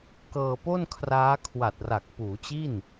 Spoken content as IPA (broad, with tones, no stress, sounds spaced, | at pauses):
k ɤː˧ p o˥˩ n kʰ r aː˦˥ kʰ w a˨˩ t̚ r a˨˩ k̚ p uː˩˦ t͡ɕ i˥˩ n